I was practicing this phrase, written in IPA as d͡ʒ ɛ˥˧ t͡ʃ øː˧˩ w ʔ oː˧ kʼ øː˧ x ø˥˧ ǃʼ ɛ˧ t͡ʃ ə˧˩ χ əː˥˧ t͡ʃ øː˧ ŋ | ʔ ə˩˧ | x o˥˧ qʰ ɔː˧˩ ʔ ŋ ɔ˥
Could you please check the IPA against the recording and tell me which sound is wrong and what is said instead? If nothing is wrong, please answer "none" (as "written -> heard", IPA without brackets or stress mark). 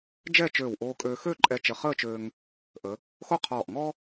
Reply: none